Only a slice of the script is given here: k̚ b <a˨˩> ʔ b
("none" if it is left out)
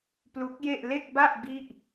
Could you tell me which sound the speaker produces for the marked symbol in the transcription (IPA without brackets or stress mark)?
a˥˩